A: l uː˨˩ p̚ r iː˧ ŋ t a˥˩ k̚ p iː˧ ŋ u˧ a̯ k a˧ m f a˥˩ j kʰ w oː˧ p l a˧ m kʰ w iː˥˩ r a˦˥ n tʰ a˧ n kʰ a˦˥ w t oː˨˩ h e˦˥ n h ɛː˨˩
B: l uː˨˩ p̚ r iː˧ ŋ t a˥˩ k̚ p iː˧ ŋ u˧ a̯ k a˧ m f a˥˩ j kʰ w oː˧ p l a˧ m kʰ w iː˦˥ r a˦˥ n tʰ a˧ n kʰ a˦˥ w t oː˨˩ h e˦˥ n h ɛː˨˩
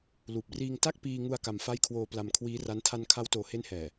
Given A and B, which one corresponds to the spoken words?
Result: B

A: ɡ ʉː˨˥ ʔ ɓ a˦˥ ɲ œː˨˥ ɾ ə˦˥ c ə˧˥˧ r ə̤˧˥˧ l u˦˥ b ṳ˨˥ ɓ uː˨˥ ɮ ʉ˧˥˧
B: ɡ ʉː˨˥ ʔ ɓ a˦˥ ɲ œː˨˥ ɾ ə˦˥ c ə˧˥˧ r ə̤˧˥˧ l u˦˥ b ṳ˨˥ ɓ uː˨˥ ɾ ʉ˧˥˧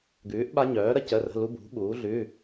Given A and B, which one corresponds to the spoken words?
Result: A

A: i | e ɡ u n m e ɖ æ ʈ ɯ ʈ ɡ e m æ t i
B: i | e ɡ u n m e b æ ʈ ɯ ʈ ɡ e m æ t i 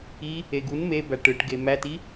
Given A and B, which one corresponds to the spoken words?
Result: B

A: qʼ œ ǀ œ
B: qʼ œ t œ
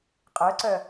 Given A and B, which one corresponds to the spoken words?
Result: A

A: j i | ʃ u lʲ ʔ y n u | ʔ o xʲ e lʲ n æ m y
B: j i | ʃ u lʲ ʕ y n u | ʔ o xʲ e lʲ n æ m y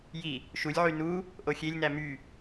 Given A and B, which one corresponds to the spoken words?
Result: B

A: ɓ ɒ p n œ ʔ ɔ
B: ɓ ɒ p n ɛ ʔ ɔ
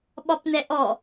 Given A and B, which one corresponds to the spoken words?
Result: B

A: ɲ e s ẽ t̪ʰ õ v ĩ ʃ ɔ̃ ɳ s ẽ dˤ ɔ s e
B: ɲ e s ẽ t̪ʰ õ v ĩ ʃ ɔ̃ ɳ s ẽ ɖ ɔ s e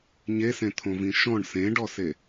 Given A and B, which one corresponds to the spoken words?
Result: B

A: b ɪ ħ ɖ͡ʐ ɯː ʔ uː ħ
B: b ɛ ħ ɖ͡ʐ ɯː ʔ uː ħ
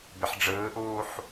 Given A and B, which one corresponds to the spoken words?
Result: A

